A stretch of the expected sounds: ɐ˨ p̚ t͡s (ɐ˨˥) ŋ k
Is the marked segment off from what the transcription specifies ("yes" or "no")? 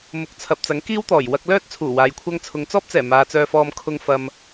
no